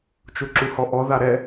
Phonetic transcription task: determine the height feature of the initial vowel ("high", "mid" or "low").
high